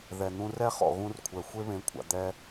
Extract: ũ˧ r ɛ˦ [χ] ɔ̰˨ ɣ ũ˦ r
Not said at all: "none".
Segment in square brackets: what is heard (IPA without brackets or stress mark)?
χ